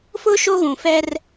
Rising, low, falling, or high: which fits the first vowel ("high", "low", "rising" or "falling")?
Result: high